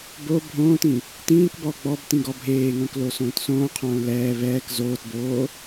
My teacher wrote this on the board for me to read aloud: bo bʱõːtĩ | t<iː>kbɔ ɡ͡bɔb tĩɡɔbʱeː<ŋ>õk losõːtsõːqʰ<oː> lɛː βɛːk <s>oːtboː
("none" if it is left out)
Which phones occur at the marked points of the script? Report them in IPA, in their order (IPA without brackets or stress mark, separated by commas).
ĩː, ŋ, õː, z